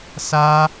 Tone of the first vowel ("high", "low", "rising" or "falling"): high